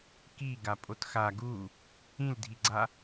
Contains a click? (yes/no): yes